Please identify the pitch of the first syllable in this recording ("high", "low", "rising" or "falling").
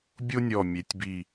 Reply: high